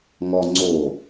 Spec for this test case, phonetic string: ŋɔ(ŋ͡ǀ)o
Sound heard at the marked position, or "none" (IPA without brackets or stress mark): ŋ͡ǀ